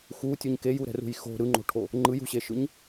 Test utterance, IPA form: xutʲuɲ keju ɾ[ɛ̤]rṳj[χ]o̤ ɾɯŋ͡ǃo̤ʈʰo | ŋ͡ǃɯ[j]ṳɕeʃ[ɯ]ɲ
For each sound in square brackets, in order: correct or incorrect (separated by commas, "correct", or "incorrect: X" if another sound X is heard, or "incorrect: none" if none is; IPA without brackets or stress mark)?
correct, incorrect: x, correct, correct